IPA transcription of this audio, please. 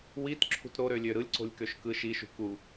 witǁʰṳt ɾoɾølʲø ɾɯlʲǀo̤lʲkøʃ kɯʃ iʃṳ ku

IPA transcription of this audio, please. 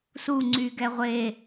su ŋ͡ǀyɡɛʁʷe

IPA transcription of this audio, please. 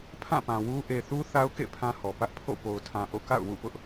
pʰã˦˨pã˨ wu˦ ʔe˨θu˦ θa˦ʊ̯kḛ˦˨ pʰã˦hɔ˨ pä˦ʔpʰo̰˦˨ po˨ʊ̯tʰã˨ʔo̰˦˨ ka̰˦˨ʊ̯wṵ˦˨pʊ˦ʔ

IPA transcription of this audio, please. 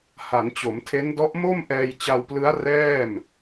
ha˩˦nt͡ɕo˩˦mtʰe˦˥ndɔ˦˥ʔ mo˥˩mʔɛː˧jt͡ɕa˧wplɯ˦˥a̯ rɛː˥˩m

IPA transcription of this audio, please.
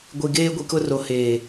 ɡʷi˨ ɡeː˦ɡʷi˨kʊ˦ ro˨heː˨

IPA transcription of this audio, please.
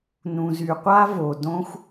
nũ˩zy˩qʷa˥ vo˩dõ˥xʷ

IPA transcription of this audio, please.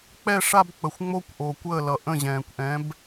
k͡pɛ˥˧ʂa˥˧b k͡pə˨xʷŋ͡mo˥˧kʷʔo˨ kʷəː˥˩lʌ˨ ʔə̃˥˩ʑɛ̃ː˨kʷʔɛ̃˨˥b

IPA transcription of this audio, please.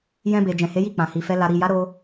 jɛ̃˧be˨ d͡ʒɛ̃˨he˨˦ji˦˨ k͡pã˨hi˨fɛ˧ la˨ɾi˨ja˨˦ ɾo˧

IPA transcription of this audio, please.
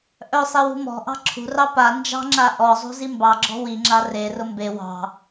ʔœsˤewṳ mɔ̤ʔɑ̤ ǁʰṳrɑ pa nd͡ʒɑ̤ŋ͡ǁa ʔɔzˤṳzi mbɑɡ͡ǁɔ̤ wiŋ͡ǁa rerʊ mbe wɑ̤

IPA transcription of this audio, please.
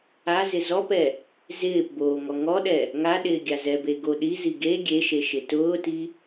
azɪ zɔpɛ | zɪːp boːŋɔŋɔɗɛ | ŋaɗɪː ɡʲazɛbe ɡoɗizi ɡe ɡʲeʃe ʃɪtʊːti

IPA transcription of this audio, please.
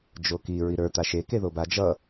d͡ʒoki ɹiɾə˞ t̪aʃe keðoba d͡ʒʌ

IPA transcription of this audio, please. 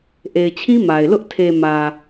ʔe˨ɪ̯t͡ɕʰĩ˦ ma˨ɪ̯lʊ˦ʔ tʰe˨ mä˨

